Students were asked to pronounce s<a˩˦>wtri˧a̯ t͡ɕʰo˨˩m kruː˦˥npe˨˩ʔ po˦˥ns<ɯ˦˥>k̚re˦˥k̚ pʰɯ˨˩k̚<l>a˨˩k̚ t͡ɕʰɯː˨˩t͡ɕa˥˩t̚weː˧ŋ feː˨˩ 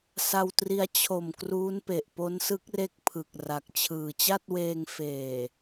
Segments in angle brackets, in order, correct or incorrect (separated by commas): incorrect, correct, incorrect